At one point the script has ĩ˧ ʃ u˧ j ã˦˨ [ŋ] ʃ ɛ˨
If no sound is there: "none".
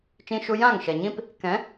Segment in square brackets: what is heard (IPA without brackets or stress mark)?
ŋ